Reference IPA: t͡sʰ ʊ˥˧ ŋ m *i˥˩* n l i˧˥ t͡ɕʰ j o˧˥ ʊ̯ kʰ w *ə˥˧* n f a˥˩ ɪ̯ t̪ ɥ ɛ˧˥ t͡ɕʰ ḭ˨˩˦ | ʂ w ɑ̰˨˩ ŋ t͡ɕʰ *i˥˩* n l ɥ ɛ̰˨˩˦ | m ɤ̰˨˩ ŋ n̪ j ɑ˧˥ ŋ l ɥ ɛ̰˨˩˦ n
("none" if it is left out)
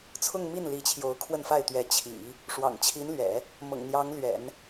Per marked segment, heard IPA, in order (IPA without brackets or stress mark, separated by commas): i˥˩, ə˥˧, i˧˥